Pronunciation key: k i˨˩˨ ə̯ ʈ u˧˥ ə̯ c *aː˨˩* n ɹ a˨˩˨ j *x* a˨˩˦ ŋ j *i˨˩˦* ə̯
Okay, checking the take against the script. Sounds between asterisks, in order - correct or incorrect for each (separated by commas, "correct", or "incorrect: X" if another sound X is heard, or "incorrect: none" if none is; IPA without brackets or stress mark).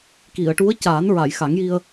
incorrect: aː˨˩˦, correct, incorrect: i˧